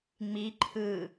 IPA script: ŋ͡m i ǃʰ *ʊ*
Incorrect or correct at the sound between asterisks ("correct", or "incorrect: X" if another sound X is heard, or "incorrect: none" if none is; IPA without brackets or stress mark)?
incorrect: ɯ